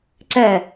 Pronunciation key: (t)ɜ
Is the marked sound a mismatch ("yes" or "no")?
yes